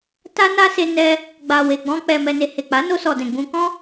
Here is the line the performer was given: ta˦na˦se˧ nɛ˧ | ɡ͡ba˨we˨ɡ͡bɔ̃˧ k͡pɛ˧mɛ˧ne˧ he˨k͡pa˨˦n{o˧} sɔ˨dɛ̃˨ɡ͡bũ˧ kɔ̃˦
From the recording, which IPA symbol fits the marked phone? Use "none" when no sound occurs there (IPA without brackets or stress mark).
o˧